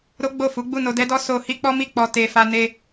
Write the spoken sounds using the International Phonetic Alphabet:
ɾ o˦ ɡ͡b o˦˨ f u˨˦ ɡ͡b u˦˨ n o˧ d ɛ˦ d ɔ˦ s o˦ h i˦ k͡p ɔ˦ m i˦˨ k͡p ɔ˧ t e˨ f a˧ n e˧

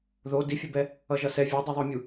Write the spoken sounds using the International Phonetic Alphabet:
ð o d i fʲ o b ɛ | ʌ ʒ ʌ s ɛ vʲ a dˤ i ðˤ o mʲ u

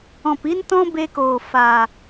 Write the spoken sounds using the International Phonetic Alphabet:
ɔ̃˨ p i˦ n t ɔ̃˦ b e˧ k oː˨ f a˨

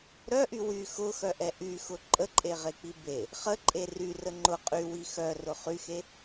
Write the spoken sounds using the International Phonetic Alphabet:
ɾ œ ʔ y w y x ʊ x œ ʔ ɛ ʔ y x ʊ ǃʼ ə ǃʼ e ʁ e k͡p i b e | χ ə ǃʼ e r y r ə ŋ͡ǃ ʊ qʼ y w i x œ r ʊ χ y x e

